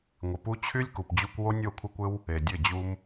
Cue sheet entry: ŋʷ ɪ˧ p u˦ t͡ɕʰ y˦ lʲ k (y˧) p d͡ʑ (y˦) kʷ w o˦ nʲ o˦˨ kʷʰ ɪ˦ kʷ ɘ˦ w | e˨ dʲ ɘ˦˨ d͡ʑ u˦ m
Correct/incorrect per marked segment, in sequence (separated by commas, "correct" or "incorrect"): incorrect, incorrect